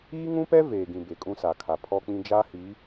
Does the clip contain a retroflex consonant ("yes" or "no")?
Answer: no